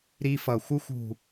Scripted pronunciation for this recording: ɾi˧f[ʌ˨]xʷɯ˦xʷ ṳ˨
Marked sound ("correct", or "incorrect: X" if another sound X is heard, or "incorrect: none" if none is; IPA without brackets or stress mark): correct